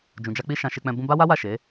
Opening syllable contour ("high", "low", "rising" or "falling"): low